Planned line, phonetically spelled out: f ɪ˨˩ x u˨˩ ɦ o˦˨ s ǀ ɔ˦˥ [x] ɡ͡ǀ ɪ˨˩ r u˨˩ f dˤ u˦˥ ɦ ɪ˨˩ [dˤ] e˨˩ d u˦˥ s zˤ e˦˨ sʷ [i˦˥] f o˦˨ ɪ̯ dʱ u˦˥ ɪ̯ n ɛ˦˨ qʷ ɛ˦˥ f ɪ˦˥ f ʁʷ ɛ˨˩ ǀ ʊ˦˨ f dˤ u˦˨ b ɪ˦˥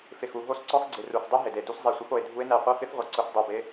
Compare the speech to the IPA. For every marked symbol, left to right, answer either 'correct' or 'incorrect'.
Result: correct, incorrect: d, incorrect: ɪ˦˥

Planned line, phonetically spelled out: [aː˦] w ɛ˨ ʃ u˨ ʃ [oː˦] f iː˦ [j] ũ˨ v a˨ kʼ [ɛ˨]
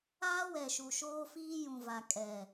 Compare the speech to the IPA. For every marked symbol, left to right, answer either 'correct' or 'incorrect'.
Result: correct, correct, correct, correct

